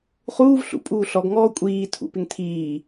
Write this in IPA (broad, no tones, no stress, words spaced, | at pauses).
χuːv ɬṵpʼuː ɬɔɡŋɔː kʷʼiː tʰṵpɪŋ tʰiː